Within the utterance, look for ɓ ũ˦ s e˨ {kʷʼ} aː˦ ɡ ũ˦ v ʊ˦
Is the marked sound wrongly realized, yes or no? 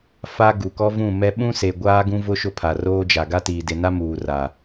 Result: yes